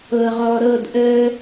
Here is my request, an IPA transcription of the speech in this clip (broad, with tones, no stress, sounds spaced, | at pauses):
ɤ˨ ʁ ɔ˨ ɾ ɤ˦˨ d ʔ əː˦